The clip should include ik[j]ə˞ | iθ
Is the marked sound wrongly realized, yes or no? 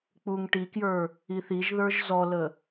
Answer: no